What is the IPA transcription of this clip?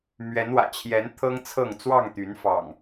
m ɥ ɛ˨˦ n w ä̰˨˩ t͡ɕʰ j ɛ˨˦ n t̪ʰ ɤ˦ ŋ t͡sʰ ɤ˥˨ ŋ t͡s w ɑ˥˨ ŋ t̪ y˨˦ n f ɑ̰˨˩ ŋ

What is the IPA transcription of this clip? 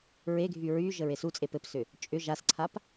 ɹ e ɡʱ y ɹ y ʒ ə ɹ e s u t͡sʼ e p ɘ p s ʏ | t͡ʃʼ ʏ ʒ a s ǀʰ a p

